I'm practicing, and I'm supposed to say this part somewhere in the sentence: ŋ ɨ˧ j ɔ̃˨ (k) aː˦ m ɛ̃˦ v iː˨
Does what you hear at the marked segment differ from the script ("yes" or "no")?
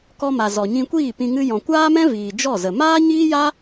yes